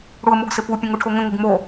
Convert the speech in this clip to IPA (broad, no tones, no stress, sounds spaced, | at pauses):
ɽ u ə̯ m o ɡ s ɪ p u pʲ ə̃ ŋ u ʈʰ o ŋ ə̃ ŋ ɪ ɡ m o